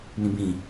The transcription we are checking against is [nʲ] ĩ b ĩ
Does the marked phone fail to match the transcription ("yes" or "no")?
yes